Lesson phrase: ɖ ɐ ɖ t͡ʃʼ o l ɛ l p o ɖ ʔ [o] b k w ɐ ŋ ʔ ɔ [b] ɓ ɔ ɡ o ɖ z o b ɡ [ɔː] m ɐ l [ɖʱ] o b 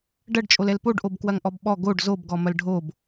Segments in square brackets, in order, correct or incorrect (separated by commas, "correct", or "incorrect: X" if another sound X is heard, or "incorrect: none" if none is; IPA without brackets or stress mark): correct, correct, incorrect: ɔ, correct